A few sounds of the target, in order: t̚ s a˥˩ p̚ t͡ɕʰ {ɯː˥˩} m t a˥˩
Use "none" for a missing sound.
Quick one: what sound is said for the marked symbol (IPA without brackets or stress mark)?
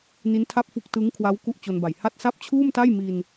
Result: uː˥˩